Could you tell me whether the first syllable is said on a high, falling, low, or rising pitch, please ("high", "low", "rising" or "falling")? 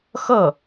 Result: falling